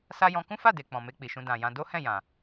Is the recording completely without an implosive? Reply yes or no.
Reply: yes